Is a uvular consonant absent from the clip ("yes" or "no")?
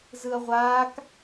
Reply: no